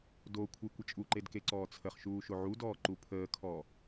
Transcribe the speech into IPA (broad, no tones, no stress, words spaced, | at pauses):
dokʷʰe kʷət͡ʃʼuǃed keǀɔːt͡sʰəχʃuː ʃoʕudɔː ǃupʰəːkʰɔː